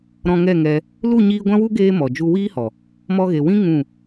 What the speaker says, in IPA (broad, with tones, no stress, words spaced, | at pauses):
ɾɔ̃˧ŋɛ˦˨ŋɛ˧ | lu˦˨ɲiː˧ɡʷã˦wu˦ ɡeː˦mɔ˨ d͡ʒu˧wiː˦hɔ˨ | mɔ˧ɣe˨wĩ˦ ŋũ˦˨